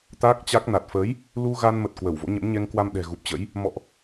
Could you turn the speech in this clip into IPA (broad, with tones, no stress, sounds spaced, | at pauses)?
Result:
t̪ a˦˥ k̚ t͡ɕ a˦˥ k̚ n a˨˩ t̚ f əː˨˦ j | l u˧ ɣ a˧ n m ə˨˩ t̚ k w ə˧˩ w v o̰˧˥ ɲ ə̰˧˥ m ɲ ɛ˧ ŋ k w a˧ m ɗ ɛ̤˨˩ ɣ u˨˩ p̚ t͡ɕ ə̰˧˥ j | m ɔ̰˧˨ ʔ